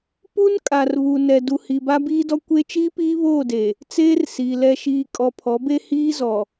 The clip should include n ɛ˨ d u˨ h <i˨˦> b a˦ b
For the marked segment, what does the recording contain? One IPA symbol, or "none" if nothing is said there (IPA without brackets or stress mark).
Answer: i˨